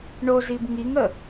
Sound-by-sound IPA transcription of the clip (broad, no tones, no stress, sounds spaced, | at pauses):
ɳ o z i b ŋ i ŋ ə